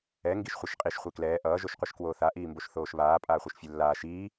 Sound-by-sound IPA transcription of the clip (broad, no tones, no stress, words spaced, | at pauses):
ɛ ŋɡiʃχʷaʃqʼiʃ χʷeklɛː ʔʌː ʒoʃqʷɯʃkwoːθa ʔiːmboʃθoːʃβaː pʼaːχʷiʃfʲelːaː ʃiː